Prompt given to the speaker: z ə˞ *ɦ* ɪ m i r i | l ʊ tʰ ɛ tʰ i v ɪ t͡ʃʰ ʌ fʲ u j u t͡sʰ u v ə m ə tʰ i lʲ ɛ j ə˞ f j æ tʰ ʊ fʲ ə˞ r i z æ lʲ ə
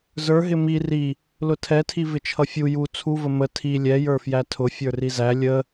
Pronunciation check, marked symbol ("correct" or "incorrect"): correct